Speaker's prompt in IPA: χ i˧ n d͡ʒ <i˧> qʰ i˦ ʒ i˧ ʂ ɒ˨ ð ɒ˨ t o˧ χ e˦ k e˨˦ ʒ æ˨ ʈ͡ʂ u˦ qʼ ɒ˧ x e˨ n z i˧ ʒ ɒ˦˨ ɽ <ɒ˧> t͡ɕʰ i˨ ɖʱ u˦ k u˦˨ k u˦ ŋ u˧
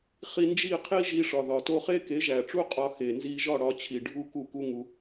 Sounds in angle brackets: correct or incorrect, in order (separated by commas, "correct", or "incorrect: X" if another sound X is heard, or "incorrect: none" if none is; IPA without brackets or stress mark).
incorrect: i˦˨, correct